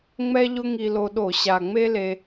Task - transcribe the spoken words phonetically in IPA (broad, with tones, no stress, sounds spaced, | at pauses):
ŋ͡m ɛ˥ ʎ ʊ˥ ŋ i˧ l o˧ ɗ o˧˩˧ ɕ a˨˩ ŋ͡m e˥ l e˧